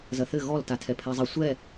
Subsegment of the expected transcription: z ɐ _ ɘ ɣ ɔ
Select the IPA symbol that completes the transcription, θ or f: θ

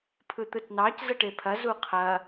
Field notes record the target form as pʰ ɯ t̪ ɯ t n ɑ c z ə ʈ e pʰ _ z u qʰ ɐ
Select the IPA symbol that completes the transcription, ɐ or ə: ɐ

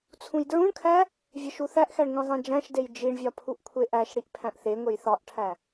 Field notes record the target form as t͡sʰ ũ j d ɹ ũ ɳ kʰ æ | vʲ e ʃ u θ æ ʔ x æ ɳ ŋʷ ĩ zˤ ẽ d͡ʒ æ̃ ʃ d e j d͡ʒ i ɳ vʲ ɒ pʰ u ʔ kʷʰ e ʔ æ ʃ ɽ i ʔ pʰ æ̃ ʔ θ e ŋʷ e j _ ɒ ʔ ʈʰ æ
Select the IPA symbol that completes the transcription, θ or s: θ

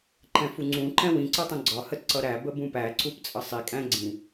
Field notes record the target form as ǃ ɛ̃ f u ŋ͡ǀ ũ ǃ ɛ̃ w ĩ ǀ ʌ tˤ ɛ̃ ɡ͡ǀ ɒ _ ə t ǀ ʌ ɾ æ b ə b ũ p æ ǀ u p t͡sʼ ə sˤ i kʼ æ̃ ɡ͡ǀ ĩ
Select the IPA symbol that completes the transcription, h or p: h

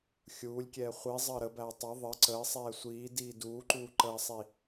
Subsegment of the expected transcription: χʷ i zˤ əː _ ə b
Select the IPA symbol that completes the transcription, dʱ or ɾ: ɾ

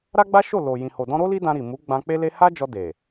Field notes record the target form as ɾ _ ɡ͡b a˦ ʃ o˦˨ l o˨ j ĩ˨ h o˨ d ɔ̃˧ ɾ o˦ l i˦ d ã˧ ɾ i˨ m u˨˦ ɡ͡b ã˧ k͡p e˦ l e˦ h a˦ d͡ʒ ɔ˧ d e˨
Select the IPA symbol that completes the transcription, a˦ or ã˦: a˦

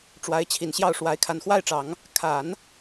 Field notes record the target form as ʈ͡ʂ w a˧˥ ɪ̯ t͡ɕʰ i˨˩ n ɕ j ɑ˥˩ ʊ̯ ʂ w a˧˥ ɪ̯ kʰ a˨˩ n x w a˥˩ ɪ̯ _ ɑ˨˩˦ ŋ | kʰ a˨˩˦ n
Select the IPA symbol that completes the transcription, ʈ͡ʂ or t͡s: ʈ͡ʂ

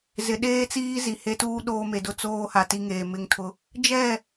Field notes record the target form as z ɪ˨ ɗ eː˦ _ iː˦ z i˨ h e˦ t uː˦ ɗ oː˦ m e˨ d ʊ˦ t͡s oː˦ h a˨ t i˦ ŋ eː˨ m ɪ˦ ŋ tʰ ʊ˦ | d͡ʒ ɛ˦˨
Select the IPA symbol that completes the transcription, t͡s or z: t͡s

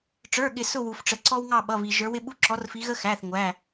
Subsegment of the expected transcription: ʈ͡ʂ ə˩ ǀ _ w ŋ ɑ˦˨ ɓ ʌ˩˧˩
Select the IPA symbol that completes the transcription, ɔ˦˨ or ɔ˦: ɔ˦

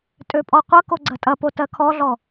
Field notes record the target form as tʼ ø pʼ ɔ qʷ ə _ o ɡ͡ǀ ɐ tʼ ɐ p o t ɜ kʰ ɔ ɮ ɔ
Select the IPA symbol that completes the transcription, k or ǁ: k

